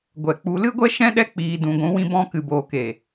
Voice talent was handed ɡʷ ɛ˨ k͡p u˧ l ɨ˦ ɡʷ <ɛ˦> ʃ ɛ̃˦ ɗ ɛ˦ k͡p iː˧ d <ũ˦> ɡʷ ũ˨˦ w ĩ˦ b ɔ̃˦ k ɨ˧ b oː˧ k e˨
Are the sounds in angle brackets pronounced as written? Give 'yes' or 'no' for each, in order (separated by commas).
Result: yes, no